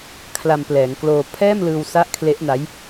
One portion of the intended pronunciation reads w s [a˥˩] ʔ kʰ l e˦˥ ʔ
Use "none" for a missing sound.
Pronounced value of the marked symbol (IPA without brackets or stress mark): a˦˥